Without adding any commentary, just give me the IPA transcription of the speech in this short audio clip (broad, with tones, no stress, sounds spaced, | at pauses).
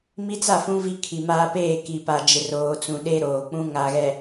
m i˦ t͡s a˦˨ f ũ˦ v i˦ kʰ i˨ m aː˦ p eː˦˨ k i˨ p a˨ d͡ʒ ɪ˨ r oː˨ t͡s ũ˨ ɗ e˦ ɾ oː˨ k͡p ũ˦ ŋ a˨ ɣ ɛ˨